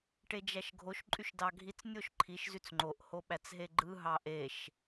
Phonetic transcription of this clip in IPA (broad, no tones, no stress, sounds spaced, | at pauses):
ʈ e d͡ʒ æ ʃ ɡʱ o ʃ ǃʼ y ʃ d ɑ ɡʱ i t͡s nʲ o ʃ ǃʰ i ʃ z y t͡s ŋ͡ǃ o ʔ h o ɓ æ t͡s ɦ e ɡ͡ǃ ɯ ɦ ɑ ʔ e ʃ